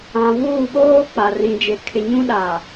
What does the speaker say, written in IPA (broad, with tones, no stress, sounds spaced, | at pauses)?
ã˨ v uː˦˨ ɓ oː˦ k͡p a˨ r ĩ˨ d͡ʒ e˨ kʰ ɪ˨ ɲ ũ˦ ɗ a˨